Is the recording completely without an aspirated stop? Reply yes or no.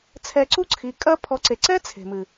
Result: no